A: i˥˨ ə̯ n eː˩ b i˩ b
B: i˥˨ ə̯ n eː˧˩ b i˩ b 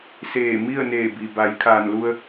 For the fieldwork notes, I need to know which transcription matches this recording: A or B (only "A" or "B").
B